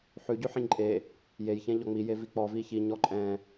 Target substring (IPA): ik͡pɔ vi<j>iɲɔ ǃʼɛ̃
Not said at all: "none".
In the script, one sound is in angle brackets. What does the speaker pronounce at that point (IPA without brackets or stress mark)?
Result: ç